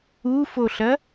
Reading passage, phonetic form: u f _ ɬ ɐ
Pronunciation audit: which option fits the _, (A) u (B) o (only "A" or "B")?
B